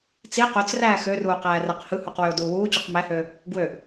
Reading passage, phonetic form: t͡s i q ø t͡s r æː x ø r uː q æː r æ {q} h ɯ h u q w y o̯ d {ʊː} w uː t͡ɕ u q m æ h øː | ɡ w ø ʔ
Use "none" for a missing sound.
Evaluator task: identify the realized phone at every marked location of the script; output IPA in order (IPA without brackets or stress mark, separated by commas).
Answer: q, uː